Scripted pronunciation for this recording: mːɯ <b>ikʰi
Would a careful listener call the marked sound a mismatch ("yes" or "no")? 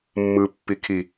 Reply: yes